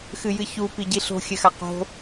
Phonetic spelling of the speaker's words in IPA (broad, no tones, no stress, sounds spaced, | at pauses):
x ɨ j ɨ ç u p i ɟ i ɬ o̤ xʲ ɘ x a q o̤